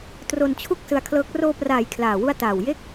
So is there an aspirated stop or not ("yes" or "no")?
yes